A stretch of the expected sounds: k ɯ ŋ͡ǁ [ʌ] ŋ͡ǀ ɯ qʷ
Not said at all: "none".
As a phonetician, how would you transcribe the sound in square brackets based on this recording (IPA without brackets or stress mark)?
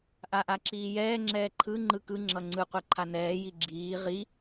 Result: ʌ